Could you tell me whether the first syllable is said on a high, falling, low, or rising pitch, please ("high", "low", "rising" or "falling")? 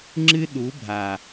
high